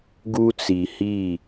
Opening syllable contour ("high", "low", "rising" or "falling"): high